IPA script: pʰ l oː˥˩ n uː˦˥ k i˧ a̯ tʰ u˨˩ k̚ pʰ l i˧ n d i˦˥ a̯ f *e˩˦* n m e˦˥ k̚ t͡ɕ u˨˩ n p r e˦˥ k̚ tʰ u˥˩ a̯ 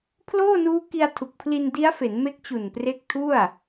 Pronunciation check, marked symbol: correct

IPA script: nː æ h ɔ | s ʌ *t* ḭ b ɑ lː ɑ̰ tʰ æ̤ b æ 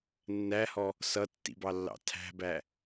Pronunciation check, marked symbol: incorrect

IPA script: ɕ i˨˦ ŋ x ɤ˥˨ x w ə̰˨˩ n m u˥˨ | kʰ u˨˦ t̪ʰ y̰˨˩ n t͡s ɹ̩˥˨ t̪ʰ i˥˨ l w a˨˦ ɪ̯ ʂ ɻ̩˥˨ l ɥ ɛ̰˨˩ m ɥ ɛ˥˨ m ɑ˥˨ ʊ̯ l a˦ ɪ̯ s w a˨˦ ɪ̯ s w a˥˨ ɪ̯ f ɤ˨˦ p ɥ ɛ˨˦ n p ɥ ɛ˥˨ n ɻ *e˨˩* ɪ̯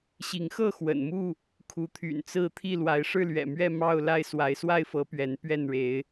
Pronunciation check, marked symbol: incorrect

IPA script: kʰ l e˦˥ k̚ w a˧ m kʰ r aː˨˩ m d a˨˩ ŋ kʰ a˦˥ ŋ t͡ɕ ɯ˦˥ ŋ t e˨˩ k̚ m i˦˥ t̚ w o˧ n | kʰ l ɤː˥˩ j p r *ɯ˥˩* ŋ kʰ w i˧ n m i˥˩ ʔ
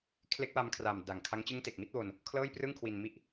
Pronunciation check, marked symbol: correct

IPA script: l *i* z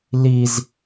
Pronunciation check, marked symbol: correct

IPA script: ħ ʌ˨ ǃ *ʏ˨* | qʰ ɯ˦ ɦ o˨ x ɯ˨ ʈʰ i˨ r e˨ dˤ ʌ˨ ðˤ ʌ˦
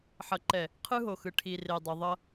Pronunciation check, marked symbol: incorrect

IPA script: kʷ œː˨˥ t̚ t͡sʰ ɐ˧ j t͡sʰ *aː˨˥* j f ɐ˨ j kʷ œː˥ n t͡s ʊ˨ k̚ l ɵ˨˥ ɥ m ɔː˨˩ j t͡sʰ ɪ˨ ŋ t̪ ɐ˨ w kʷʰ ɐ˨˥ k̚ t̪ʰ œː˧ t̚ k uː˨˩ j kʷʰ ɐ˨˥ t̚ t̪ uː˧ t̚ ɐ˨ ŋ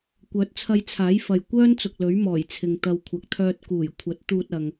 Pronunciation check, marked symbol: correct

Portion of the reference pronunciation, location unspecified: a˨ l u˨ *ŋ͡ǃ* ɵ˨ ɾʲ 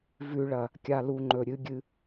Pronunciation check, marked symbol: correct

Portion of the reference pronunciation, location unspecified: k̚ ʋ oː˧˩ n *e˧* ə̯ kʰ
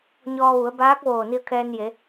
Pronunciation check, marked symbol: incorrect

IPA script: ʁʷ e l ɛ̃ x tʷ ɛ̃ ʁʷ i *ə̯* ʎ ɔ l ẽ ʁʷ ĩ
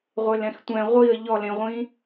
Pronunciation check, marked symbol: correct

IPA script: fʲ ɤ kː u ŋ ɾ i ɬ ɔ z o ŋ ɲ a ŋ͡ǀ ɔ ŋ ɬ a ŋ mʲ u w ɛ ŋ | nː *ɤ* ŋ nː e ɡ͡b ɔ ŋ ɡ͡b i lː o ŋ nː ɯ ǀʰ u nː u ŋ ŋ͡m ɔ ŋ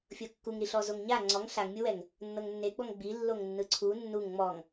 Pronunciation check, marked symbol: correct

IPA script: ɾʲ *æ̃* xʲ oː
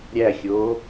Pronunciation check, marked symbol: incorrect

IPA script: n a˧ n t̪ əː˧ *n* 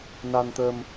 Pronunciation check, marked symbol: incorrect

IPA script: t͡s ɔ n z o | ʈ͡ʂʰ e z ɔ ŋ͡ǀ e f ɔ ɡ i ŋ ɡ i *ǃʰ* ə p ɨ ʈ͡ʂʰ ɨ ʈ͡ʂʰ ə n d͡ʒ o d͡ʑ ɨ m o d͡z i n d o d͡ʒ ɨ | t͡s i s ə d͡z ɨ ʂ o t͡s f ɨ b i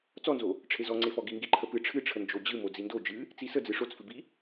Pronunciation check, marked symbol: correct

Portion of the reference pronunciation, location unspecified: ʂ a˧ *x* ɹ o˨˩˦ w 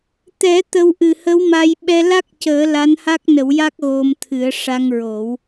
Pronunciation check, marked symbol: incorrect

